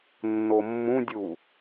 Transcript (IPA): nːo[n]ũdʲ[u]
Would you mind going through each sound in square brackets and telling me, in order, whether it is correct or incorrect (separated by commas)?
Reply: incorrect, correct